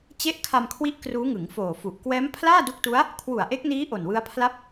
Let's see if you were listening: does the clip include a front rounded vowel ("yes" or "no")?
no